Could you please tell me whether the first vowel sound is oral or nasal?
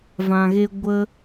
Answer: nasal